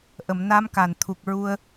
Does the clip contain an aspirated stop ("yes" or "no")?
yes